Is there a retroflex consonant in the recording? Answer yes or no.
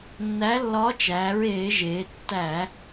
no